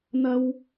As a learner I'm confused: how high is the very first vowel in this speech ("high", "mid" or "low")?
low